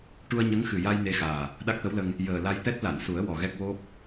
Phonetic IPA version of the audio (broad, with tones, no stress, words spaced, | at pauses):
ʈu˧ə̯ɲə˧˥ŋxɨ˨˩ja˧j ne˧xaː˨˩ | ɗa˦˥k̚t̪ə˧˥wlə˧ŋ | jəː˨˩la˧jt̪ɛ˦˥t̚ la˨˩˨nsu˨˩˦ə̯ wɔ˨˩ɣɛ˦˥k̚wo˦˥p̚